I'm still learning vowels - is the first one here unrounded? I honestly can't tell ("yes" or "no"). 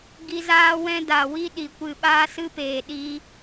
yes